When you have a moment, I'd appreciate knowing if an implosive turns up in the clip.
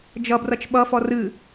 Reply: yes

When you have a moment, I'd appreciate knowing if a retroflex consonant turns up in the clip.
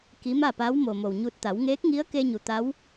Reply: no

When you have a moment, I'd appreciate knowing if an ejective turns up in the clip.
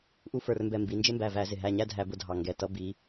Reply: no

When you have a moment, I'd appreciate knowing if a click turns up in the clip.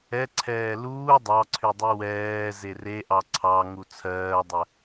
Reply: yes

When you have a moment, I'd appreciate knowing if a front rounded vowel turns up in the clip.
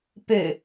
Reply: yes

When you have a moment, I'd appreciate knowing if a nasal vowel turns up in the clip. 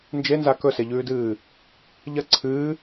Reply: no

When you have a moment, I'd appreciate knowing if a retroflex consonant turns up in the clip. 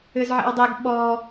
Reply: no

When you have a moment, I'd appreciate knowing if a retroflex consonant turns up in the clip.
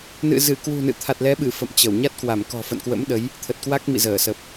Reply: no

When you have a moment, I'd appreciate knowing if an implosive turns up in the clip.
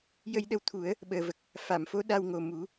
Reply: yes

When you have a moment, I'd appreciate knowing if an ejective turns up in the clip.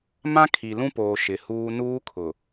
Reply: no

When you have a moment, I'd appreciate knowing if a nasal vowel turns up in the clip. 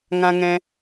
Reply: yes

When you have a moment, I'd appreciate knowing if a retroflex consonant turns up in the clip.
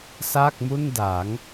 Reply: no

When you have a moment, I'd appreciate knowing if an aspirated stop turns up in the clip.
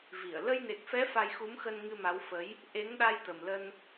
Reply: no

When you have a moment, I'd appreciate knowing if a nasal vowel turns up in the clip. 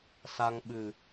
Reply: no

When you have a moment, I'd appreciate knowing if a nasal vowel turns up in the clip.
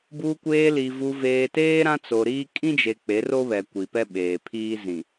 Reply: yes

